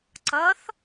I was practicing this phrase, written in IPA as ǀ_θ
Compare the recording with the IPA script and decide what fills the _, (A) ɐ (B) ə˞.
A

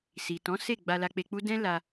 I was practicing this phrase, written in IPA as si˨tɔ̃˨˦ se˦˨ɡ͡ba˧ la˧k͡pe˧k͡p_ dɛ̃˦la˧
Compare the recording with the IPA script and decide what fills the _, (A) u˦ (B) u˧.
A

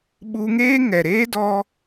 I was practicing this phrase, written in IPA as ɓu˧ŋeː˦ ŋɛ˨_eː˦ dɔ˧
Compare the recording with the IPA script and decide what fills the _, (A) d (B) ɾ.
B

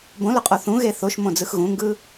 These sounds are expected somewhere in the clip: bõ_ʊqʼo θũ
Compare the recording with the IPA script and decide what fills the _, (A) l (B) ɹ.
A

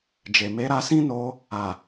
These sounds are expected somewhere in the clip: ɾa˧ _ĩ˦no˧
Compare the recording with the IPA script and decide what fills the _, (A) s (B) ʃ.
A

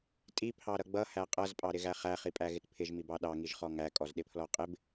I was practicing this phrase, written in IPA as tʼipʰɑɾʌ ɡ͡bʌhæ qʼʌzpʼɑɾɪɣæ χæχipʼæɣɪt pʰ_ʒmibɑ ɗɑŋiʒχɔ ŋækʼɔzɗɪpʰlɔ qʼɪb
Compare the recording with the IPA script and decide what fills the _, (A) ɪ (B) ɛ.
A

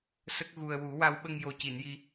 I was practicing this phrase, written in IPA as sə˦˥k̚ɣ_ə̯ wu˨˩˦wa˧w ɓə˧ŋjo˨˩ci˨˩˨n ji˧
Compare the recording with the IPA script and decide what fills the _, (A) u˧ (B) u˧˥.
A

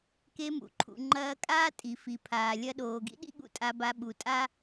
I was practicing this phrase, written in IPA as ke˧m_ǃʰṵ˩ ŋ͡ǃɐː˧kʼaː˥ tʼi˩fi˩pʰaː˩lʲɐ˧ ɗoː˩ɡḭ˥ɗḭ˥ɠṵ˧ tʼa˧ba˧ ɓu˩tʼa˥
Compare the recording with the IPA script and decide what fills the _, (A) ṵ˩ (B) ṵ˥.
A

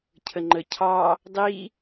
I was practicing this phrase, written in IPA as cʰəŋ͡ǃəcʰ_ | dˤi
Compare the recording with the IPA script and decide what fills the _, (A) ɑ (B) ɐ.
A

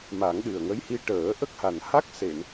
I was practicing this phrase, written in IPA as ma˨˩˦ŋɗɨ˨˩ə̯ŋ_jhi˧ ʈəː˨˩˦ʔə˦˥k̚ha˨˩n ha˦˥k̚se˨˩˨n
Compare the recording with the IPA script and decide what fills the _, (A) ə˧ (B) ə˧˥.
B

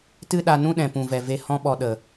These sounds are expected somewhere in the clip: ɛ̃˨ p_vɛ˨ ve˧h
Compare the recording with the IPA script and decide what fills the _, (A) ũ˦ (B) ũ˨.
B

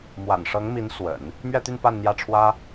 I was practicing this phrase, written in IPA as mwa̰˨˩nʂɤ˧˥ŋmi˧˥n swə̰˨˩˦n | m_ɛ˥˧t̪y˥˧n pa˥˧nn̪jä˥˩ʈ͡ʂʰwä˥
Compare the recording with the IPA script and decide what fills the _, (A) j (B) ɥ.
B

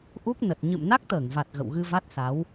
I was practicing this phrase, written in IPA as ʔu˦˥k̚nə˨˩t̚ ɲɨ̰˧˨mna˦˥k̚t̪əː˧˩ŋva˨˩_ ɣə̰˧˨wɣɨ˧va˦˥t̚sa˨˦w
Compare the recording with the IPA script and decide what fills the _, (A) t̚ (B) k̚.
A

